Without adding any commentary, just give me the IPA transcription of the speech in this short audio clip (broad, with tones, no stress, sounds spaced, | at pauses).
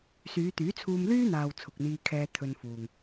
s yː˨˧ t̪ yː˨˥ t͡sʰ uː˧ m l yː˥ n̪ aː˨ w t͡sʰ ʊ˨ k̚ n̪ iː˧ kʰ ɛː˧ t̪ʰ ɵ˧ n f uː˨ ŋ